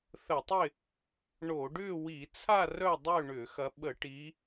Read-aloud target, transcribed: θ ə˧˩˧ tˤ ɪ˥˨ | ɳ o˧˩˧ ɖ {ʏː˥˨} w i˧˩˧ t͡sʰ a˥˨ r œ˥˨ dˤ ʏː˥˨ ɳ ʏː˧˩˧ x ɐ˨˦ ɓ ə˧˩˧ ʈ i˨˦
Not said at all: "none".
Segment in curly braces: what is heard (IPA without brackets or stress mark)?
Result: ʏː˥˨